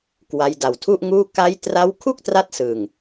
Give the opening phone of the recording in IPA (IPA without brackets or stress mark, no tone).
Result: k